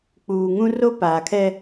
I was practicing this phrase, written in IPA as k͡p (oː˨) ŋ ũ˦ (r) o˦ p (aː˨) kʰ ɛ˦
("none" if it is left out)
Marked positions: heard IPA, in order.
uː˨, r, aː˨

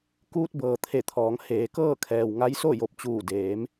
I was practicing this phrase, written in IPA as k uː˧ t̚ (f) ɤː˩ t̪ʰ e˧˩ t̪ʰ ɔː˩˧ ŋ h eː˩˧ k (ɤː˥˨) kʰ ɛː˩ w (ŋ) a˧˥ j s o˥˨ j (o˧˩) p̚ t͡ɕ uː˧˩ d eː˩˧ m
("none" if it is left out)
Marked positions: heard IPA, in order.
b, ɤː˥˨, ŋ, o˧˩

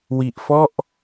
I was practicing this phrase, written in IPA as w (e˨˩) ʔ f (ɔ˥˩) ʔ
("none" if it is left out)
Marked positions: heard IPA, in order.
i˨˩, ɔ˥˩

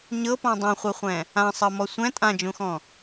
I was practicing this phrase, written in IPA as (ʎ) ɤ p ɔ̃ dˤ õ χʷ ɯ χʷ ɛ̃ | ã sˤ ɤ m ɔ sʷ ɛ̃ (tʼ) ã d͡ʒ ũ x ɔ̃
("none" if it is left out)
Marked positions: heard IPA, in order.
ɲ, tʼ

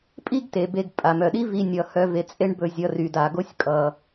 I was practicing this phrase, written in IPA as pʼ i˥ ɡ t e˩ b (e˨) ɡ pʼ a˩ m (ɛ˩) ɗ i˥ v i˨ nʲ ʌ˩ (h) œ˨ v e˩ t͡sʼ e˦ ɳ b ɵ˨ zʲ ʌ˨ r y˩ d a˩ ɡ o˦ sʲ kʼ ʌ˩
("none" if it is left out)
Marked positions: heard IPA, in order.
e˨, œ˩, h

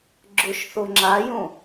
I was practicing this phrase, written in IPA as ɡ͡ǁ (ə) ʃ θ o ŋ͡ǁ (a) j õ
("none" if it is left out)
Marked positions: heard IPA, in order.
ʊ, a

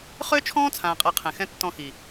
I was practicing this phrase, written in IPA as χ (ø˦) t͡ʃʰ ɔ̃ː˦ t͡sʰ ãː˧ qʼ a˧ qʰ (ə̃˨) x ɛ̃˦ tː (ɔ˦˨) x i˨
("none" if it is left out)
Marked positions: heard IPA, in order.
ø˦, ɛ̃˨, ɔ̃˦˨

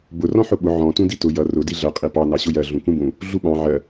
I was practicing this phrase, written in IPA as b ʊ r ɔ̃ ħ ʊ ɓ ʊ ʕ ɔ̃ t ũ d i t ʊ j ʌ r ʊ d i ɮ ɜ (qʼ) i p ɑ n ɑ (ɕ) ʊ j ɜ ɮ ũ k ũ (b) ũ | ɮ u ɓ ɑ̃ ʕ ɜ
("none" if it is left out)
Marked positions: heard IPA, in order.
qʼ, ɕ, b

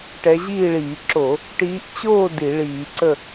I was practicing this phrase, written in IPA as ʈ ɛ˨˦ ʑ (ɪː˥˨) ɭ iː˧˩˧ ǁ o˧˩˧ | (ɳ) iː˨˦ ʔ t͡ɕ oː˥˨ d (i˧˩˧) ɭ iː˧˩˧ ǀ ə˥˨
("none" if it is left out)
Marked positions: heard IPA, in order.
iː˥˨, ʈ, i˧˩˧

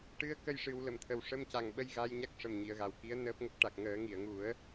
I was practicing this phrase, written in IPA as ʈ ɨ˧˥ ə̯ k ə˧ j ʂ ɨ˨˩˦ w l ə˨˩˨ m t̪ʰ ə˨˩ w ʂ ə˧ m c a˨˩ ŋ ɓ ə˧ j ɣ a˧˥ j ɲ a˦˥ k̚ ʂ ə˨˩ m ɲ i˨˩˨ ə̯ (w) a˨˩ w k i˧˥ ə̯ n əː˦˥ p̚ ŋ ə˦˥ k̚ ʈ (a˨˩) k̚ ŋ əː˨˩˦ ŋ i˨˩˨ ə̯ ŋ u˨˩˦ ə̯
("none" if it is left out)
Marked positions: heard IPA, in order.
ɣ, a˨˩

